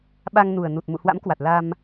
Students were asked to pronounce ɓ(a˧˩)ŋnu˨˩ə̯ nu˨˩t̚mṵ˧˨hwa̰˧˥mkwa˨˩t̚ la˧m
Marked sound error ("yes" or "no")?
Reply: yes